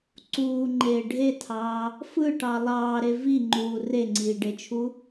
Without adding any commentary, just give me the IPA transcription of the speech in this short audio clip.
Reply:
ǀuːŋ͡ǃeː ɖʱetʰɑː | fɯʈɑ lˠɑːɾe viŋ͡ǃuː reŋ͡ǀiːɖet͡ʃʰu

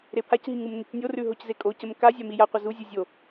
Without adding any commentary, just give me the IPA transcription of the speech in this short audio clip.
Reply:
ɾepʰacɦi ŋumnecnʲorʉ ɦoczekʼocəm kazʲa mijaqʷə zuzʲu zʲo

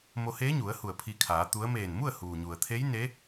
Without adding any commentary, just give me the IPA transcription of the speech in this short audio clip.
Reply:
mo˧heː˧˥ɲu˩˧ə̯ hu˧˩ə̯pʰi˧kʰaː˩˧t̪u˧˥ə̯ meː˧˩nmu˥˨ə̯ huː˩ɲu˩ə̯ t̪ʰe˧˥jne˧˥

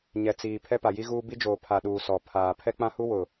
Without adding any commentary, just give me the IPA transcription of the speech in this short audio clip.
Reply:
ɲɛ˨t͡siː˨ pʰɛ˦pa˨ji˦ɣuː˦ bi˦d͡ʒoː˨ pʰa˨ɗuː˨ sɔ˨ pʰaː˨ pʰɛ˦k͡pã˦hu˦ wʊ˨

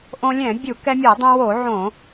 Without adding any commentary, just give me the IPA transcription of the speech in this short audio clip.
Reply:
ʔõ˧lʲɛ̃˧˩˧bʲu˧˩˧ kɛ˧mʲɛ˧˩˧dˤẽ˧wo˧˩˧ ʕõ˧˩˧

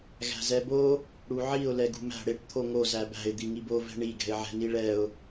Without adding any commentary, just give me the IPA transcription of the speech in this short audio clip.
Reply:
ɣæ̤zɛbo | ɽuʕiʊ̯ lɛɡṳmæ̤ ɽeʈ t̪ʰoŋo zæbæ̤ɪ̯ d̪iŋibo vɛ̤ɳi ɡɛ̤ɪ̯ʕɛ̤niɭɛʊ̯

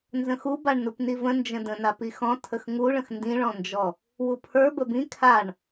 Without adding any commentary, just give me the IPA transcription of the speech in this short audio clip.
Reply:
nzə̃xubaɳ nupnivə̃ nd͡ʒə̃də̃ napixɔ̃ tʰəxŋuɭə̃x ndĩɭɔ̃nd͡ʒɔ | wupʰə˞bə bĩ kʰaɳ

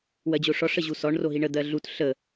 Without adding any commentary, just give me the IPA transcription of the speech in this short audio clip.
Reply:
wɜd͡ʑoʂɔ ʂəʑusɔɳ roɦiɳə d̪ɜɮut ɬə

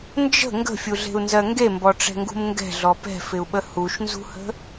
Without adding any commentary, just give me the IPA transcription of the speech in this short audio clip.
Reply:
nd͡ʒə̤ ŋɡə̤fʲuɮe̤u̯nzɜ ŋɡembɔʈ͡ʂɛ̤ŋɡṳm ŋɡɛ̤ɮɔ pɛ̤fɪu̯ɓə huʃnzṳhə̤

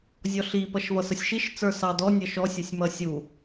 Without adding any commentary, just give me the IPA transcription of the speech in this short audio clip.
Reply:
zʲɔɬi pʌʃvʌsəsʲʃiʃ t͡sə˞sɑdɔ nʲʌʃɔ sʲʌsʲmʌsʲu

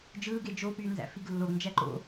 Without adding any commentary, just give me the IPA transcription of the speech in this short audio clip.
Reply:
d͡ʒɯːɡe d͡ʒopyː nzæ̰fiɡlːoɡnd͡ʒæ ǃo̰

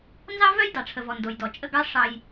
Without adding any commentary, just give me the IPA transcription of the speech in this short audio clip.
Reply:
nzɑ˦vœ˦j dɑ˨ʈ͡ʂʰə˨vɔ˨ ndo˨jdɔ˨ t͡ʃʼə˦˨ɡɑ˦ ʂɑ˦j

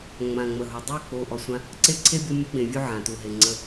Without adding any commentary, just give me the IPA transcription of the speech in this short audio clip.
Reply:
ŋ͡mã˨ ŋ͡mə˨ɦo˨ dˤu˦˨k͡po˨ ʔɔ˨sʷã˦ | ǀe˦ǀʰe˦ bʲo˦mʲə˦ɡ͡bẽ˨vʲu˦ ʕã˨tu˨ɦe˨ ŋ͡ǀə˦

